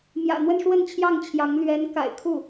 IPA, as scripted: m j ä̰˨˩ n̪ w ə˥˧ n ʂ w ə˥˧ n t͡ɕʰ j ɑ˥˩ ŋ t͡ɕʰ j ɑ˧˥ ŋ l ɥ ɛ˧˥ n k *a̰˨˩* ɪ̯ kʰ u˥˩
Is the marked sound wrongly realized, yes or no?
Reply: no